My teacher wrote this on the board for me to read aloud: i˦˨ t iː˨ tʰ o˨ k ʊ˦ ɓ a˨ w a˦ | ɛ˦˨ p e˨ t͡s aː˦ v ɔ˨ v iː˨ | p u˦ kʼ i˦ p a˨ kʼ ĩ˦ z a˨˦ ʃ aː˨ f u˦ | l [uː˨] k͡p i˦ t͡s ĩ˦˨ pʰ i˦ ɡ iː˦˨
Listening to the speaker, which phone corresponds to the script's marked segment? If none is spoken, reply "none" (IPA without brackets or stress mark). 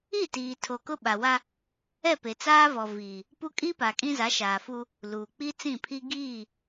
uː˨